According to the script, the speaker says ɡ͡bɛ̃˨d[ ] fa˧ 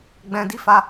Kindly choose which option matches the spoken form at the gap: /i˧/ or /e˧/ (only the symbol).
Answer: i˧